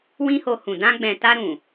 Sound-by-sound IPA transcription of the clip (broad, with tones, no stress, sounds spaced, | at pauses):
w ĩ˦ h o˧ h ũ˨ d ã˧ ɡ͡b ɛ̃˨ t a˧ ɾ ũ˨